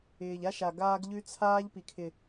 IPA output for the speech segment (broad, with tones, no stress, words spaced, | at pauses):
ɪː˨ʎa˦ ʃa˨ɡaː˦ɡ ʎʉ˦t͡sʰaː˦ʎ pi˨kʰɪ˨